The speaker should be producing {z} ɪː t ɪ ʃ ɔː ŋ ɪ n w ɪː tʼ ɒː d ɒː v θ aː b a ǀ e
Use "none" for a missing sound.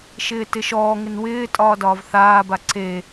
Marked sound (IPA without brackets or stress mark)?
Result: ʃ